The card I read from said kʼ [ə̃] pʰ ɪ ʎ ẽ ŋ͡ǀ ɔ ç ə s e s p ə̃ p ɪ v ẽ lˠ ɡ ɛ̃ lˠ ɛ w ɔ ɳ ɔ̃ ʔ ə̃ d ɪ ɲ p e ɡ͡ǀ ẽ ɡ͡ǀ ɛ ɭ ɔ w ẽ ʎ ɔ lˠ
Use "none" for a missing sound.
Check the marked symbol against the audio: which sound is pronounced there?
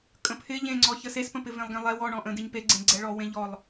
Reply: ə̃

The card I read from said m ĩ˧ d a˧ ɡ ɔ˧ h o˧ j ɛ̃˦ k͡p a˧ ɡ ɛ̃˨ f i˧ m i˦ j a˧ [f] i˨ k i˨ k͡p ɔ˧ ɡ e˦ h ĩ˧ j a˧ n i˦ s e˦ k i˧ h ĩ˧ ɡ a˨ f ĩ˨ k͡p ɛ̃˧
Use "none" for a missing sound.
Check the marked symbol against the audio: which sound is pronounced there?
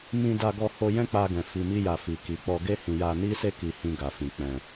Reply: f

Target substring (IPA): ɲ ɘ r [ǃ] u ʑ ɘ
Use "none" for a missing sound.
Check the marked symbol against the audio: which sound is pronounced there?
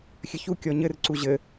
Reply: ǀ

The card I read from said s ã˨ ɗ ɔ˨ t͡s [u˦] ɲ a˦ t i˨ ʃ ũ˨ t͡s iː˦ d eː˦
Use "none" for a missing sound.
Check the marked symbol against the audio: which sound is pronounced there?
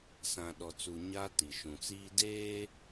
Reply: u˨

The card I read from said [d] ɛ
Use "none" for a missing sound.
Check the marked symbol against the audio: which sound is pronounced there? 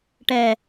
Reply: ʈ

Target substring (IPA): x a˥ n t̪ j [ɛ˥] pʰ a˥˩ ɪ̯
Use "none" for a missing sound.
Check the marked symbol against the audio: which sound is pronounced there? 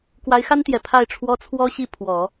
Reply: ɛ˨˩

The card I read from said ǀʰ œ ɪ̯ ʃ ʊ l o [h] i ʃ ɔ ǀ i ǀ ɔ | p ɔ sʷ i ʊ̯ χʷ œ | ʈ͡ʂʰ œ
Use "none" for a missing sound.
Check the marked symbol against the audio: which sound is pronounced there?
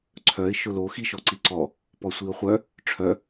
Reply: x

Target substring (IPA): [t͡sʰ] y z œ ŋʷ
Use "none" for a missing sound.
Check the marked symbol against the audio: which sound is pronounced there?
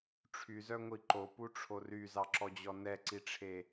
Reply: ʈ͡ʂʰ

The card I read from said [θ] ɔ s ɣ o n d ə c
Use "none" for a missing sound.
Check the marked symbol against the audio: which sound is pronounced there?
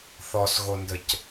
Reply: θ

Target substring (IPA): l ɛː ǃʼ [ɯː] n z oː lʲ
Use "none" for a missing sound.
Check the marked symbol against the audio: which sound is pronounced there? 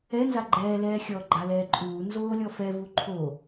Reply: uː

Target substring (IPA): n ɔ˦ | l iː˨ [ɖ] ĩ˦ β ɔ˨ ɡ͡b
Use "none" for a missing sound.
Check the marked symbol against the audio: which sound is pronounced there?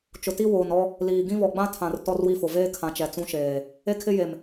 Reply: ɡ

